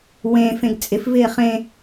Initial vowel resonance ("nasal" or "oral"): nasal